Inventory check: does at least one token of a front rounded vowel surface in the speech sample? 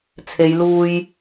no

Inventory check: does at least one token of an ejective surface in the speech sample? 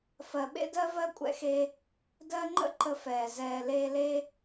yes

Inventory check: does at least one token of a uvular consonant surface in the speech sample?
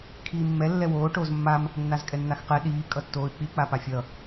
yes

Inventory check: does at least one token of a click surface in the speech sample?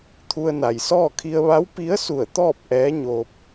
no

